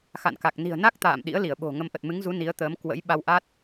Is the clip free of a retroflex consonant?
yes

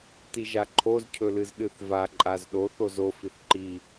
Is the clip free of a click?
no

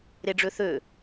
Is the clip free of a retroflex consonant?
no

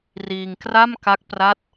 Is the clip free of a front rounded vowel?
yes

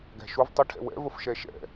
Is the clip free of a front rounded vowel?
yes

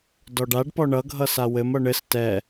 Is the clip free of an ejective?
yes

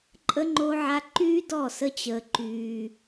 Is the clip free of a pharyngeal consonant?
no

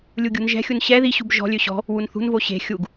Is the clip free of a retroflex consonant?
yes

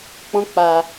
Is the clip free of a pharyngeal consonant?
yes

